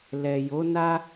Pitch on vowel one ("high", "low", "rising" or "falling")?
low